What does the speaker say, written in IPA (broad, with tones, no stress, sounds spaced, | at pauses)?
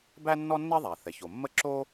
b æ˥ nː ɔ˥ nː ɛ˥ ðˤ a˩ θ ɛ˩ ç o˩ mː ə˥ ǁ o˥